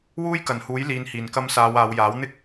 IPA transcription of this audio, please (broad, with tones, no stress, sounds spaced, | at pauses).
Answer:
w uː˥ j k ɐ˨˩ n h uː˨˥ j l iː˨ n h iː˨˩ n k ɐ˧ m s aː˨˧ w aː˨˧ w j aː˨˥ w n̪ ɪ˥ k̚